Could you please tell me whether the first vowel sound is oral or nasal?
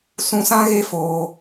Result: nasal